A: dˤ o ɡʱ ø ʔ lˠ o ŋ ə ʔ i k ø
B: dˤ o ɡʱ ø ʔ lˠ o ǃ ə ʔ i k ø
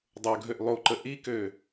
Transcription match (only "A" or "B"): B